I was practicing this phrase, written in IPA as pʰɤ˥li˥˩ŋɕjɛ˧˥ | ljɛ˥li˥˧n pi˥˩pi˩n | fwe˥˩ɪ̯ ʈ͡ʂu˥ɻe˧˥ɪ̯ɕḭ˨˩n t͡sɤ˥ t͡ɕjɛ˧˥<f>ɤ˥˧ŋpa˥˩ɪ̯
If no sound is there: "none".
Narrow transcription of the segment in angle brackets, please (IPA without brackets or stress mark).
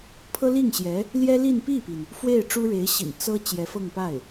f